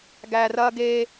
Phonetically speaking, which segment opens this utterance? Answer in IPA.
ɡ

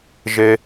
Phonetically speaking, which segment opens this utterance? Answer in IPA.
ʒ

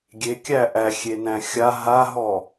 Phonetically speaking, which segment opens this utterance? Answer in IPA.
ɡʲ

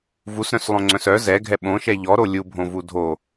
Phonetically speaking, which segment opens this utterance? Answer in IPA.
v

